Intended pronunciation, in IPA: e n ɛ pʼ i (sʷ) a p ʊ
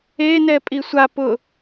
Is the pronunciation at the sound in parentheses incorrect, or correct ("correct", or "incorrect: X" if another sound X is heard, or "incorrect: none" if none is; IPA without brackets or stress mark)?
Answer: correct